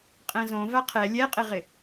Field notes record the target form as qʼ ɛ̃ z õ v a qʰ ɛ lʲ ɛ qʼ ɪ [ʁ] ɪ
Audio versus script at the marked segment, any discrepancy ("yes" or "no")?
no